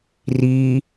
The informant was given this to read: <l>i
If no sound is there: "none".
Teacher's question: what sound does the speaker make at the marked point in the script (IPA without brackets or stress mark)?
r